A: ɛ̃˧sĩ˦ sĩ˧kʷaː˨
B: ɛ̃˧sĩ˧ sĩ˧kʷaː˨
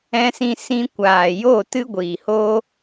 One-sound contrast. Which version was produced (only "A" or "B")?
B